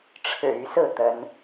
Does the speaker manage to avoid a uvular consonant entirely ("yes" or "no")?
yes